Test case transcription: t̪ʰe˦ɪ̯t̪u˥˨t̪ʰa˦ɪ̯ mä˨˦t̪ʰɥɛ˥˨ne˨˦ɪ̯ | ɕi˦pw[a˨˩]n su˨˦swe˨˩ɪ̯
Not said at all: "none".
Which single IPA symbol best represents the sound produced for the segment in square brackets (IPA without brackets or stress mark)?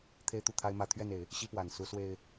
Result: a˨˩